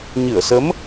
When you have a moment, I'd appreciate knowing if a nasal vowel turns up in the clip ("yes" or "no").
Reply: no